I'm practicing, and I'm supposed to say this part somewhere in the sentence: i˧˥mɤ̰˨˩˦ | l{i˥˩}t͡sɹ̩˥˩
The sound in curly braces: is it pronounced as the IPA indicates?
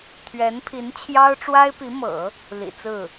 no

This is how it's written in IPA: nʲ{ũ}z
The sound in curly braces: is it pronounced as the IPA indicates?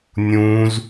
yes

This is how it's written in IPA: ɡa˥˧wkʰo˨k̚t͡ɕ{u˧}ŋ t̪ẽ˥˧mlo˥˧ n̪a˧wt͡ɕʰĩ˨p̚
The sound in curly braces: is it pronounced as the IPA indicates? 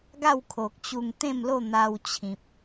yes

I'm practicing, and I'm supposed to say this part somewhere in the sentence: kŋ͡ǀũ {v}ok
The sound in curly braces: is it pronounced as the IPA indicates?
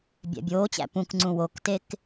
no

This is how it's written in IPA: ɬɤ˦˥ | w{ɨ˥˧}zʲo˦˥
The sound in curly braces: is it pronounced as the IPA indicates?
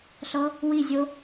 no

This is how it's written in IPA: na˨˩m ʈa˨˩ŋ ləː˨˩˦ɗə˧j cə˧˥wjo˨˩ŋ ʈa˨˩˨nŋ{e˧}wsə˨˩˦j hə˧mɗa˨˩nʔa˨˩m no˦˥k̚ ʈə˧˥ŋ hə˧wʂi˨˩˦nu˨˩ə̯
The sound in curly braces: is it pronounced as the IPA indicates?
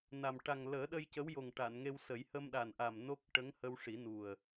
yes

